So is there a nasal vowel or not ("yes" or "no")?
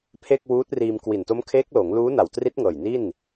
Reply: no